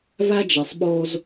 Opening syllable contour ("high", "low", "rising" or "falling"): high